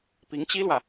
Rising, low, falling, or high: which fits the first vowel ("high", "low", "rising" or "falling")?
rising